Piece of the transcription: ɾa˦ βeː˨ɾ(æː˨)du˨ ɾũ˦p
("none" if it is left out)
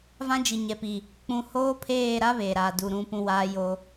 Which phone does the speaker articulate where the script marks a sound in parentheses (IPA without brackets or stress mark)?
aː˨